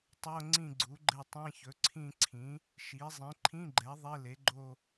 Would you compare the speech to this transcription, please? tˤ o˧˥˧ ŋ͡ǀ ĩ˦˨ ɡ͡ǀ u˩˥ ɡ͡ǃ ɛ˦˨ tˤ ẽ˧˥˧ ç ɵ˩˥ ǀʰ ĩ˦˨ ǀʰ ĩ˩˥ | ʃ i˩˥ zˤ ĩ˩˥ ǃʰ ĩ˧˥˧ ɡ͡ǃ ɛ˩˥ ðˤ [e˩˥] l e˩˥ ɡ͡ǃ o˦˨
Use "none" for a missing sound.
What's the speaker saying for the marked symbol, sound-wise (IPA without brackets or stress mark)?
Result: e˧˥˧